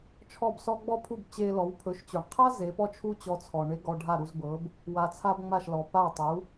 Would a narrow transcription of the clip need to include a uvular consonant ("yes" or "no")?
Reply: yes